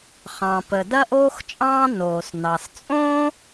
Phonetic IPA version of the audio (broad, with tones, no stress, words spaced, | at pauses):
χɑ̃˩pə˩ dɐ˥ʔoː˥xt͡ʃʼɑ̃ː˥ noː˩snɑ˩s t͡sʼõ˥